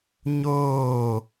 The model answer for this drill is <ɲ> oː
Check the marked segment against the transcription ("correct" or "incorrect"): correct